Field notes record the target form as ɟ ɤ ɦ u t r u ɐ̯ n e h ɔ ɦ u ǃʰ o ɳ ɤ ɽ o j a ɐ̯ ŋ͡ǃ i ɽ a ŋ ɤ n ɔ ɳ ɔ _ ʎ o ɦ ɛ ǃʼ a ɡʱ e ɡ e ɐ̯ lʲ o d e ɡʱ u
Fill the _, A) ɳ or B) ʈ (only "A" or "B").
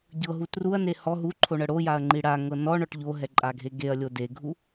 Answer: B